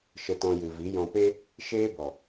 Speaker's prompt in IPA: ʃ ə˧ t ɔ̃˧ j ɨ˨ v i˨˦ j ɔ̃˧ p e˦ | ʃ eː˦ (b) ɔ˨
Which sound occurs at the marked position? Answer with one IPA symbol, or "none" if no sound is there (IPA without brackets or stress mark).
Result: b